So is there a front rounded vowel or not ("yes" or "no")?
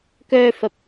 yes